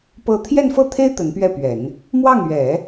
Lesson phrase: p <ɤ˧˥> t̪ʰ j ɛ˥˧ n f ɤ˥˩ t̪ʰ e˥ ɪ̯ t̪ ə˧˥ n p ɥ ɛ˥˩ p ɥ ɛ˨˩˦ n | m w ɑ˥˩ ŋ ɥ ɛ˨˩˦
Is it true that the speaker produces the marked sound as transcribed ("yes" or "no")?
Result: no